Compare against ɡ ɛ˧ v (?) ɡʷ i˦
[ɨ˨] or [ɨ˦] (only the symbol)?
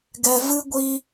ɨ˦